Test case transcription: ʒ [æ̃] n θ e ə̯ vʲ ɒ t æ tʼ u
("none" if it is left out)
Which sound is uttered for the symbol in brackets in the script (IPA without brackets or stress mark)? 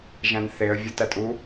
æ̃